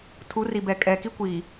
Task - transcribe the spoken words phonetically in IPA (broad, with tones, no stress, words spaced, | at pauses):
tʰu˨˦ri˨bɛ˨ kʼɛ˨ ki˦kʷiː˨